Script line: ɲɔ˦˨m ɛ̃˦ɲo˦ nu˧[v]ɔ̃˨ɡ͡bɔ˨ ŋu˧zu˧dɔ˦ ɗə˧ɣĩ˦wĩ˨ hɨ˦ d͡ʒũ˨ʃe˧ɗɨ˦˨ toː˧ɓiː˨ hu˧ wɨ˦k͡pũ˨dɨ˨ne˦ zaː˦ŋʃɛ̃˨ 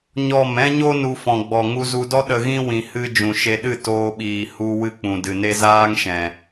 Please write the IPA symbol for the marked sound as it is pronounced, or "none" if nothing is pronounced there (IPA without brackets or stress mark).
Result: f